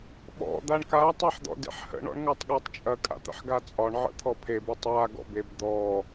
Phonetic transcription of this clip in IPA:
ɓɔ̰ d̪aɳka tˤaħd̪ɔ̰dḛħhə̰ ɳɔ̰ɳŋatˤɠatˤt͡ʃʼɐ kʼa̰t̪ə̰ħɡat͡sʼɒɳ ʕə̰t̪ʰɔpʰeb otˤwa ɡɔ̰beb d̪ɔ

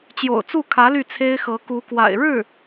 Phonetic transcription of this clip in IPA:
t͡ɕjo̰˨˩ʊ̯t͡su˥˩kʰä˧˥ ly˥˩t͡sʰe˥ɪ̯ xɤ˧˥ku˧˥kwa̰˨˩ɪ̯ ɻɻ̩˥˩

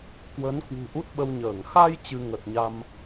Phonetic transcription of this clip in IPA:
kwə˨˦n kwṳ˨˩ʔu˦˥t̚ɓə˧wɲəː˧˩ŋ xa˧j t͡ɕɨ˧ŋə˨˩t̚ɲa˧m

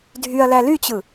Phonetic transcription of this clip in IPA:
dʱyɐ̯læ lyt͡ɕɯ

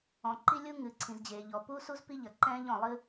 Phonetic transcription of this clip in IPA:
ɔ̃˩ǃi˥lʲu˥ ŋɨ˩ǀʰĩ˩zd͡ʑeː˩ʎɔ˩ pu˥su˥z pi˥ʎɐ˩ ǃɛ̃ː˥ʎɔ̃˩lˠɨ˥

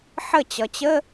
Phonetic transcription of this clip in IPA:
ħə˥˨ t͡ɕʌ˩t͡ɕə˧˥˧

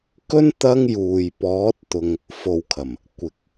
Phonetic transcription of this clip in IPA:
kɵ˥n t̪ɐ˥ŋ juː˨j pɔː˨˥t̚t̪ʊ˨ŋ | fo˧wkʰɐ˨˩m | kʷɪ˨˥k̚

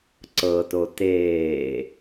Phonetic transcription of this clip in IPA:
ǀɤto teː

